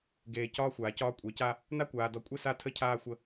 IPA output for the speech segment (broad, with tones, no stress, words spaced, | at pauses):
ɡeː˨ cɒː˦xʷaː˨cɒː˦ kʷʼe˨˦ca˦ | na˦kʷaː˨dɔ˨kʷʼe˦ sa˦tʰə˦cʰaː˦xʷə˦